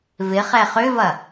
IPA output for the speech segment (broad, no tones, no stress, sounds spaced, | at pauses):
v ɪ χ ɛ χ ʏ v ɐ